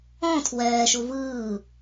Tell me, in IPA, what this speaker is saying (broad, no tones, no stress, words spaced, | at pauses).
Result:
ɔ̃ tʰwɛːʃu vɯː